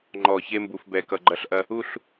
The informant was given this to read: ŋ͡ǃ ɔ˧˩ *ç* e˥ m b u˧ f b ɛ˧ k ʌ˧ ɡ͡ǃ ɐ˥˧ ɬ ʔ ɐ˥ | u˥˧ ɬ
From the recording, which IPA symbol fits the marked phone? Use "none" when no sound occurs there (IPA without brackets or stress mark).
ç